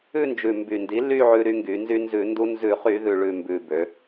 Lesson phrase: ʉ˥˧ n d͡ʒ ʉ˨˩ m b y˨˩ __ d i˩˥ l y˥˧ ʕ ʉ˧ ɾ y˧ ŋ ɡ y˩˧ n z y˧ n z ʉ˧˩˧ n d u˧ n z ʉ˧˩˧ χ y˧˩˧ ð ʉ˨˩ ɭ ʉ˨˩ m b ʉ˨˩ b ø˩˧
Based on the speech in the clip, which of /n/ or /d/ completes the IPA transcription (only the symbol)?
n